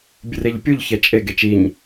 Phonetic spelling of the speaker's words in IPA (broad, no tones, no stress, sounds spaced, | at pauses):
bʲ ɨ r e ʎ pʲ u ʎ ç ɛ t͡ʃʼ e ɡ e t͡ʃ i ɲ